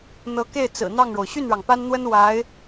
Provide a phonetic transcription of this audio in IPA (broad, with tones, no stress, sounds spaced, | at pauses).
n̪ ɤ˧˥ k e˥˩ ɪ̯ t͡s ɹ̩˨˩ n̪ ɑ˥˩ ŋ ɻ o˩ ʊ̯ ɕ y˥˩ n ɻ ɑ˩ ŋ p a˥ n n̪ w ə˥ n w a˧˥ ɪ̯